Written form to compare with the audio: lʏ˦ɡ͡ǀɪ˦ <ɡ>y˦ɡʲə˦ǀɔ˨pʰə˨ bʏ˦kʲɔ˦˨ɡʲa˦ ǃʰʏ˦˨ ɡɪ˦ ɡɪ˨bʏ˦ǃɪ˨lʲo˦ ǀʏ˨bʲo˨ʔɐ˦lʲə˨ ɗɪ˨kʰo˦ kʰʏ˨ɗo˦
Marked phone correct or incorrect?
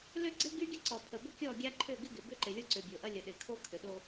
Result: correct